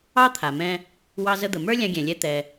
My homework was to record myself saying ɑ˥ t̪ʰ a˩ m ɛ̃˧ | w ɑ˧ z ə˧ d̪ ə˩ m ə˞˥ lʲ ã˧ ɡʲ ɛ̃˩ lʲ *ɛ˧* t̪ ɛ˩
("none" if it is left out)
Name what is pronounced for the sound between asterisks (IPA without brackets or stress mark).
ɛ˧